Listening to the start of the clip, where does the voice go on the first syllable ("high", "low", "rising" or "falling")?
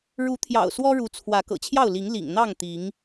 rising